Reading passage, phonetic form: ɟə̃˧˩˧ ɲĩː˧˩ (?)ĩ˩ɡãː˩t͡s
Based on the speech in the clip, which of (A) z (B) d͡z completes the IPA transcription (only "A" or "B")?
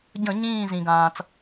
A